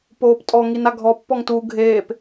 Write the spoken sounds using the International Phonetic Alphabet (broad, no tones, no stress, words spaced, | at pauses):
poːptʼɔŋin aɡʱɔpːɔŋ tu ɡʱeːp